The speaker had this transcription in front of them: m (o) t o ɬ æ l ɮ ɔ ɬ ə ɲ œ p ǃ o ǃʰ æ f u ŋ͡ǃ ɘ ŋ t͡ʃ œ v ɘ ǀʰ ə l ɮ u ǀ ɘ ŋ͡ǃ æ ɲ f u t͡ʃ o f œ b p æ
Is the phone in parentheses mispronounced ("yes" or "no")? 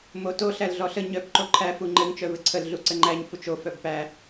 no